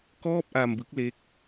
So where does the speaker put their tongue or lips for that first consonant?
velum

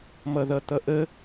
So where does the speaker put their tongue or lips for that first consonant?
lips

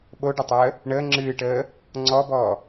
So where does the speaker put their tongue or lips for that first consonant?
lips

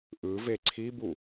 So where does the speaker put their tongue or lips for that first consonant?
throat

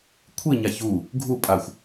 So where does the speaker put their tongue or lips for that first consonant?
velum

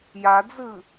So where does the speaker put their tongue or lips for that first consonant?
palate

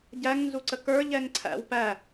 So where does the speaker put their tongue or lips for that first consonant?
palate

